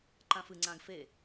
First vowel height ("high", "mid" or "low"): low